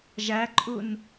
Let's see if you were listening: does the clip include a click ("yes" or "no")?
yes